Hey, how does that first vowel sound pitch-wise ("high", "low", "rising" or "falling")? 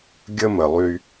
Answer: high